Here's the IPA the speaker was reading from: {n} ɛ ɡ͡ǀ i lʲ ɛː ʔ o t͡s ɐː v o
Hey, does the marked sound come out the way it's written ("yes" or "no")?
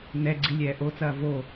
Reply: yes